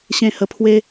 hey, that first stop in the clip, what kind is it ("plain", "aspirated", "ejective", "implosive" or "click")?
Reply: aspirated